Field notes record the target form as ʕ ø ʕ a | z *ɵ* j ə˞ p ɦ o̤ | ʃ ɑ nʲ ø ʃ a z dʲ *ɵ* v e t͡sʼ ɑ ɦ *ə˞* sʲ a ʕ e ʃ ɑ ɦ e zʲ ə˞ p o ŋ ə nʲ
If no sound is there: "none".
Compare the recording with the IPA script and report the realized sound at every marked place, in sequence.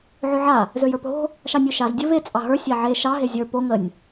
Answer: ø, ɵ, ə˞

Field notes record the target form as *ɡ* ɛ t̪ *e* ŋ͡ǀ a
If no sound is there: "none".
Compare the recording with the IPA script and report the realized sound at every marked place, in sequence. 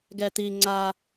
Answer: ɡ, i

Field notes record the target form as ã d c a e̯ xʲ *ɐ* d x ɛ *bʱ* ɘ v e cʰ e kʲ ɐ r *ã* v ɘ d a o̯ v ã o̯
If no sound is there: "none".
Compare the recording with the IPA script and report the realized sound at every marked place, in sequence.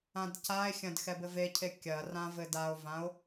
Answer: ɐ̃, b, ã

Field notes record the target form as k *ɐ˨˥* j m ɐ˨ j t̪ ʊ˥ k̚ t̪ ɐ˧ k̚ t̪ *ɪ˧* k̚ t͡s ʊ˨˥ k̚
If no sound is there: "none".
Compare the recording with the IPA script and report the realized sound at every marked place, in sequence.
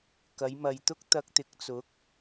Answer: ɐ˨˧, ɪ˨˥

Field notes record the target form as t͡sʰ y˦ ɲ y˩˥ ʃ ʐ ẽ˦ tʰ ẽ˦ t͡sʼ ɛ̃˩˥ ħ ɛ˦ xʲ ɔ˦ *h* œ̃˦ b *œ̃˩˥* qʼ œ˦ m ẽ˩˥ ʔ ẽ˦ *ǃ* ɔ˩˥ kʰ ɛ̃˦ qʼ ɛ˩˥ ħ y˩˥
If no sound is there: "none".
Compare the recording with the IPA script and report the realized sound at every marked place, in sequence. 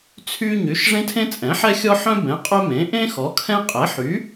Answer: ħ, ɛ̃˩˥, x

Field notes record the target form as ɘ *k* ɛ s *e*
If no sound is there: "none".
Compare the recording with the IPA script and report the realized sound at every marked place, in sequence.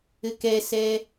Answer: k, ɛ

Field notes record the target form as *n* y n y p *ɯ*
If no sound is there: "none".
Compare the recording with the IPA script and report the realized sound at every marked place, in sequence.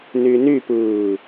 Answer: n, ɯː

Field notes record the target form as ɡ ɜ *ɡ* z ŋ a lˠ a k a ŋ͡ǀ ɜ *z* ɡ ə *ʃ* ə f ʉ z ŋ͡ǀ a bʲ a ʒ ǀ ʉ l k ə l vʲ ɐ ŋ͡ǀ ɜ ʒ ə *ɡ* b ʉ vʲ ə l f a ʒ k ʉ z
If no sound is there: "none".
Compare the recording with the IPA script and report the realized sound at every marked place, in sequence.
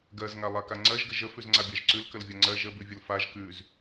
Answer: none, ʒ, ʒ, none

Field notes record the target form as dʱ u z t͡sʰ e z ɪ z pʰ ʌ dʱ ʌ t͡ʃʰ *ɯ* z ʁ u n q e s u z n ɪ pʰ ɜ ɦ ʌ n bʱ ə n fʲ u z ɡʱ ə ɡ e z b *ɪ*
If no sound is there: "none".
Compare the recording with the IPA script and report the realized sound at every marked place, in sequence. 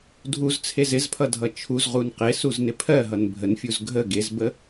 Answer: u, ə

